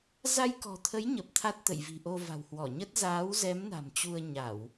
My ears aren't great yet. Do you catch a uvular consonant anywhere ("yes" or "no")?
no